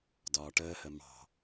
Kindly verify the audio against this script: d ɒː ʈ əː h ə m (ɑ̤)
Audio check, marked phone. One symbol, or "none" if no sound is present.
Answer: ɑ̤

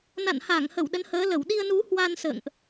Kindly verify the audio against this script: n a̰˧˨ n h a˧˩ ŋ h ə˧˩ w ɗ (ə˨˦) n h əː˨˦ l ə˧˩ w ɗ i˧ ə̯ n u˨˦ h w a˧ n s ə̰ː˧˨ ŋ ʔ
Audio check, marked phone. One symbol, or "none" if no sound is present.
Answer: ə˨˦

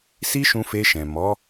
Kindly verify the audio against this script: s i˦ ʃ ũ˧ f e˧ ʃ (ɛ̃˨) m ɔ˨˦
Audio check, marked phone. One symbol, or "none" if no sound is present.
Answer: ɛ̃˨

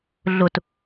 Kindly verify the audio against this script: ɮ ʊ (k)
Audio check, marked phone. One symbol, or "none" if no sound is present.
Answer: t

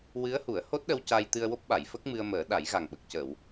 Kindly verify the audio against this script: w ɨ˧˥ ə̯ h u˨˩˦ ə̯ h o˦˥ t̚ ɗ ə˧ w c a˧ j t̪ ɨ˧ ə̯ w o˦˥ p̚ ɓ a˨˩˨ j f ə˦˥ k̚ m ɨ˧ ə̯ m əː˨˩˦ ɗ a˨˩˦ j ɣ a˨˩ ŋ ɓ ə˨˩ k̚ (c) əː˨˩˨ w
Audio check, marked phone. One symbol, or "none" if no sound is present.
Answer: c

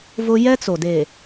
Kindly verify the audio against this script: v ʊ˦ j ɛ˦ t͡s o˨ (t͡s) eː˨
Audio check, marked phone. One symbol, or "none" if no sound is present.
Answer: d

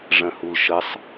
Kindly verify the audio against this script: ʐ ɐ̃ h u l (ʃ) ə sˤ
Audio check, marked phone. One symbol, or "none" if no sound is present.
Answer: ʃ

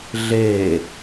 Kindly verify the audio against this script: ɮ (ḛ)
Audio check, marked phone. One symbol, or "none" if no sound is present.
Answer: e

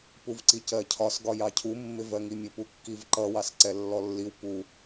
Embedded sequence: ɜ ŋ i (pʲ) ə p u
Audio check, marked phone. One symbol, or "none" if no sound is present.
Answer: mʲ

